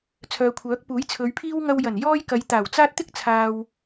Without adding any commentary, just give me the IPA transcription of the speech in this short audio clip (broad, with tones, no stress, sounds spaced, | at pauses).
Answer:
t͡sʰ œː˨ kʷʰ œː˨˥ k̚ p uː˨˥ j t͡sʰ ɵ˨˧ ɥ pʰ iː˥ w ŋ ɐ˧ w j ɐ˨˩ n j ɔː˥ j k ɐ˨˧ j t̪ aː˨˩ w t͡s aː˥ t̚ t̪ ɪ˥ k̚ t͡sʰ aː˨ w